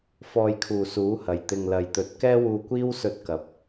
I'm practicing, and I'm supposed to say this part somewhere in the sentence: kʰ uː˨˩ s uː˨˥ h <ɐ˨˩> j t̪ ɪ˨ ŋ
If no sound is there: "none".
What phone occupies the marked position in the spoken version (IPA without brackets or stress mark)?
ɐ˨˩